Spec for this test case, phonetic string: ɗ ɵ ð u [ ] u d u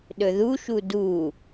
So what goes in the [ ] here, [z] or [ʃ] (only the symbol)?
ʃ